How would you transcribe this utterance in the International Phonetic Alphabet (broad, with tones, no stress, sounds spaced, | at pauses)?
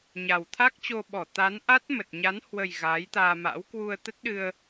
ɲ a˨˩ w t̪ʰ a˦˥ k̚ t͡ɕ o˧ ɓ ɔ˧˩ t̪ a˨˦ n ʔ a˦˥ t̚ m ə˨˩ t̚ ɲ a˨˦ n h w ə˨˩ j ɣ aː˨˦ j t̪ aː˧ m a̰˧˥ w k w u˧ ə̯ t̪ ə˦˥ t̚ ɗ ɨ˧ ə̯